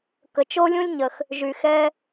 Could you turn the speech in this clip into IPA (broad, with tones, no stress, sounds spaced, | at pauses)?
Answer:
k ə˩ t͡ʃ o˥ lʲ ũ˥ lʲ ɲ ə˩ x | ʒ y˩ x ɛ˥